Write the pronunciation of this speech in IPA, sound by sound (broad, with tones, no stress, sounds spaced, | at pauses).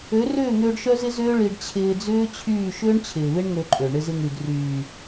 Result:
ø˨˦ r ʏː˦˨ ŋ ʏː˧ ɖ ʃ œ˦ z ɪ˦ z ʏː˦ ɭ i˧ ɖ t͡ɕʰ ɪː˧ d͡z ʏː˦ t͡ɕʰ yː˦˨ ʃ ʏː˦ ɳ t͡ɕʰ ɪː˨ β ɪ˦ ɳ ŋ ø˧ ǃʼ ø˨ ɳ ɪ˧ z ɪ˧ ŋ y˨ d r yː˨